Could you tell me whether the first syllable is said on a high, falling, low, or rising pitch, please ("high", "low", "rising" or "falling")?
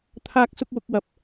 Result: high